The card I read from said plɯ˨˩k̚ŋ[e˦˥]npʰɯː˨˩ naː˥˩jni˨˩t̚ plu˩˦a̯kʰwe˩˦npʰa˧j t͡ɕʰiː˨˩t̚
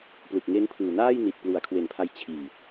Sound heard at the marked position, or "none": e˦˥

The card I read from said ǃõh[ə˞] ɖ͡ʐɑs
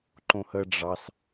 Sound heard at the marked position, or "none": ə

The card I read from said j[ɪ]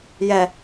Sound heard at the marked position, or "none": ɛ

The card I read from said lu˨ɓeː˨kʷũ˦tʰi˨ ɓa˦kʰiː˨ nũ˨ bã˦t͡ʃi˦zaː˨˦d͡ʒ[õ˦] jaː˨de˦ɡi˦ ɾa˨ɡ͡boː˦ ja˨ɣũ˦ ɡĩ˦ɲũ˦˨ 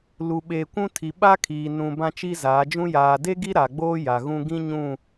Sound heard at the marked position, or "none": ũ˦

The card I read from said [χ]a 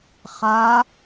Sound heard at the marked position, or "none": χ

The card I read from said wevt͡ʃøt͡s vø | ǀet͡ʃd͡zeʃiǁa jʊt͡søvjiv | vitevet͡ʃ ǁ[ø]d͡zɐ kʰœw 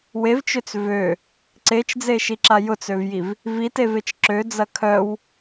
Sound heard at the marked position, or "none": ø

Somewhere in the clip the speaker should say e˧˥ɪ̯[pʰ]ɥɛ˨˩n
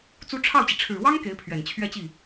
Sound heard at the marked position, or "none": pʰ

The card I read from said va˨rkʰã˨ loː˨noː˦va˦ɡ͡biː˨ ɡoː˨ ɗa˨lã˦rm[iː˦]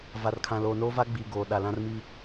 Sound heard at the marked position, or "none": iː˦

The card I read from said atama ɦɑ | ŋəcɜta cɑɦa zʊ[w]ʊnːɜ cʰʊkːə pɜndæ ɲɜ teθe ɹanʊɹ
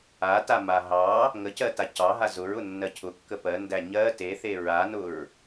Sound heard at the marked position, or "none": ɹ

